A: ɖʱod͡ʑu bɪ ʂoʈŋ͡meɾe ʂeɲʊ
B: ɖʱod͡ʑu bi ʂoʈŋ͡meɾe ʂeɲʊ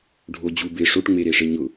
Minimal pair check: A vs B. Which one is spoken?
A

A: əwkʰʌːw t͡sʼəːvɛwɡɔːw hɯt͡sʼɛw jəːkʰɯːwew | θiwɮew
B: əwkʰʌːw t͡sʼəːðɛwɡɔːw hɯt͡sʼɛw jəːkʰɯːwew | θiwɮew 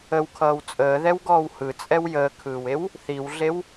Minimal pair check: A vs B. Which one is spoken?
B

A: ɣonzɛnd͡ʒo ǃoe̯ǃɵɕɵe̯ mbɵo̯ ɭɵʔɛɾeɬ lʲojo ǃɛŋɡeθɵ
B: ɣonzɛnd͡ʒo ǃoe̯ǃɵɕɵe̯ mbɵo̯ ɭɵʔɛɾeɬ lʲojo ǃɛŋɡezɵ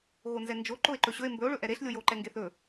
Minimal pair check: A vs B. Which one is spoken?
A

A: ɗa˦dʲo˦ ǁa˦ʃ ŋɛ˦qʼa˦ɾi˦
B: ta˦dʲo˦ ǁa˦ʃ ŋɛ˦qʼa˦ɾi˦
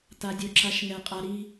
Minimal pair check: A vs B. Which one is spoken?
B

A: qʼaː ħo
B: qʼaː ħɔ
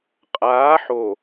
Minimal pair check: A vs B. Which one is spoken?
A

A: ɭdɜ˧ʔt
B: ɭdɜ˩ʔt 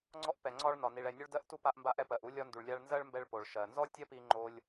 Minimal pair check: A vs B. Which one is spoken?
A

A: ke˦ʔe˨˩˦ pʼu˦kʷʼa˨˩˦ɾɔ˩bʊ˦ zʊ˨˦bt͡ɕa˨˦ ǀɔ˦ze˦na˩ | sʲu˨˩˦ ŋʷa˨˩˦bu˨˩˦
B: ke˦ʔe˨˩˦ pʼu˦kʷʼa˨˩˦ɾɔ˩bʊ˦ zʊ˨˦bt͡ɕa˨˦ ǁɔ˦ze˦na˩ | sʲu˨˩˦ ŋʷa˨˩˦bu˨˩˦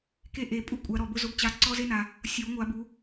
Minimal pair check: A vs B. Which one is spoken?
A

